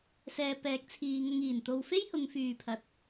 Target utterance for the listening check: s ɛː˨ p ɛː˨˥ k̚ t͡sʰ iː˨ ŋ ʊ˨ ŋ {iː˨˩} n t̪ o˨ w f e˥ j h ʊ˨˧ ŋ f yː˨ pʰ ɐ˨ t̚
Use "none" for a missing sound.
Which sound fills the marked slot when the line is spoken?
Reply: iː˨˩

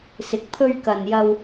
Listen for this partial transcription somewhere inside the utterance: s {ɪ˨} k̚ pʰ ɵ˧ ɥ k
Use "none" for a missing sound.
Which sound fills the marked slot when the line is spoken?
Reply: ɪ˨˥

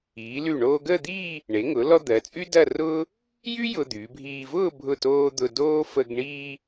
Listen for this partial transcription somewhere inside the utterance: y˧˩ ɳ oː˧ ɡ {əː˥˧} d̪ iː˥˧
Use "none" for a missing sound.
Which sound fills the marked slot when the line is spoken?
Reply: əː˥˧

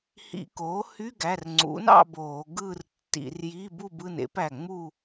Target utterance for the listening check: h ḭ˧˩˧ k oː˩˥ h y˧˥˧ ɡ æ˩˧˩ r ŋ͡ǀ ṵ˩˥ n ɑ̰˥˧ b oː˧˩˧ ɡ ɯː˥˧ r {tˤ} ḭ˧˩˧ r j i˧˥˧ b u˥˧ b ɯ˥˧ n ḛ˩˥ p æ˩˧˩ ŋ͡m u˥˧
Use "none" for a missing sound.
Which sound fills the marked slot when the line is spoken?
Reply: tː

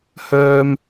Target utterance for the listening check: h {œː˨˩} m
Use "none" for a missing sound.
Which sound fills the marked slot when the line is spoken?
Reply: œː˥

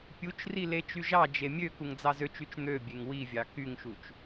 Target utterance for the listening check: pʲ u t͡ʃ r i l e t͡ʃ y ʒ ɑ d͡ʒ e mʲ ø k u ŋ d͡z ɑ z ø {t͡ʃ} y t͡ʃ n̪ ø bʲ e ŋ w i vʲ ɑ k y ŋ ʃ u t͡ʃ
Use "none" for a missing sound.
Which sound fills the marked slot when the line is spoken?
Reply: t͡ʃ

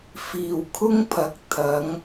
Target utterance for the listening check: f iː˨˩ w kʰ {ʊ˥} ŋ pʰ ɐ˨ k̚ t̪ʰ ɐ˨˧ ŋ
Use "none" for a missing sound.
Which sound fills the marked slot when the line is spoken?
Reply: ʊ˥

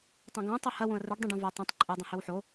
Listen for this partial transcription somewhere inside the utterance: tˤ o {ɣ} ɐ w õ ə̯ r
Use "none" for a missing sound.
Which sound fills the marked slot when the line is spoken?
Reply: h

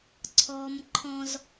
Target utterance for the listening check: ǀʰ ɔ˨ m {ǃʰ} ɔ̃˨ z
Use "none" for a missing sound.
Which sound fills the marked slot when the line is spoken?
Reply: ǃʰ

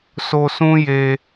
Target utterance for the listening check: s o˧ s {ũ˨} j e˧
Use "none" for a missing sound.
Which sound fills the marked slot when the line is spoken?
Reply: ũ˦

